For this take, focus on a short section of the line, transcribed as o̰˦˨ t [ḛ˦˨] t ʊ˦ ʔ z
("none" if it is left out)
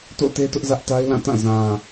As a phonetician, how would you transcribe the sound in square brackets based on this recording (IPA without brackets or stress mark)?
e˦